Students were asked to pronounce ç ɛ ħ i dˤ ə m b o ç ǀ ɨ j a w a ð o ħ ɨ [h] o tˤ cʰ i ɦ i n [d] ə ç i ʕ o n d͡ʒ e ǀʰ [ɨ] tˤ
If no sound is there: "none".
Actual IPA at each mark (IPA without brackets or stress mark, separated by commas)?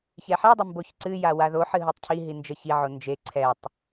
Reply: ɦ, d͡ʒ, ɛ